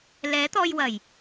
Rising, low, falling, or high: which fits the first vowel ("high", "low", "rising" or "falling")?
rising